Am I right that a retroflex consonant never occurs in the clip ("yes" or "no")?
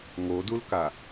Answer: yes